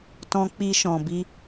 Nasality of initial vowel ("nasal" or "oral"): nasal